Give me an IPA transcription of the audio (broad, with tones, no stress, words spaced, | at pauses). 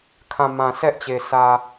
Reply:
kʰã˨ mã˨sʰɛ˦ʔt͡ɕe˨ sʰä˨